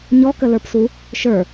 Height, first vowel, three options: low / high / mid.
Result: mid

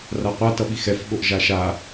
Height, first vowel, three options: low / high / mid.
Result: low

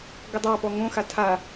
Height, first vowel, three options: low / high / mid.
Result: mid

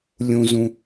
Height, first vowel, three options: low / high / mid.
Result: high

